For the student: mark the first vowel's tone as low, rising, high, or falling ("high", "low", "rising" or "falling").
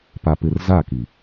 low